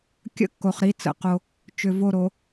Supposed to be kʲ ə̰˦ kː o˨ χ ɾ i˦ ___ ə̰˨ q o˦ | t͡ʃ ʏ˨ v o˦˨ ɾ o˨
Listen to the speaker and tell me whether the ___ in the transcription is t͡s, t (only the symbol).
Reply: t͡s